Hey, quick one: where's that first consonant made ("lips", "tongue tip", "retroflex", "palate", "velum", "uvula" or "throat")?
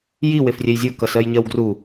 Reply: palate